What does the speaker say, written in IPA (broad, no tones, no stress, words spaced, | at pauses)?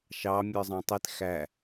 ʃɑ mʲə˞zˤɑ̃tˤit xæ